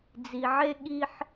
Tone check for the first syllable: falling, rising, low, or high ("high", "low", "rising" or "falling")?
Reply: low